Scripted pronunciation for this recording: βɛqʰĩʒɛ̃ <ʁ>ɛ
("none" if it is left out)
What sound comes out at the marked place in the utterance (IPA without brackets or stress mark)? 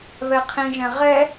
ʁ